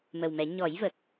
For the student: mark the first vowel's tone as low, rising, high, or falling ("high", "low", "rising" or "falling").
low